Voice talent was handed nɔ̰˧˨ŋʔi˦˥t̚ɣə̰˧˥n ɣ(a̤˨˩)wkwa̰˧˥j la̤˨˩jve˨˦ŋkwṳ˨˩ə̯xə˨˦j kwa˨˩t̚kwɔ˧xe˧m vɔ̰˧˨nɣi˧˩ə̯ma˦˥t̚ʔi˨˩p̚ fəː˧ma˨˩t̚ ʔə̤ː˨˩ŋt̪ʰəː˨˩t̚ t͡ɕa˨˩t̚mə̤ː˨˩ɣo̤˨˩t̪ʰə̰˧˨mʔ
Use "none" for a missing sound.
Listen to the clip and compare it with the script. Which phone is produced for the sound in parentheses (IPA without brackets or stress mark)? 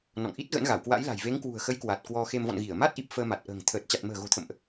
a˧˩